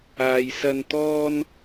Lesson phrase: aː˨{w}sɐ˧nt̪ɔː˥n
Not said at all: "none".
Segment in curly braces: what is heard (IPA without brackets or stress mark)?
j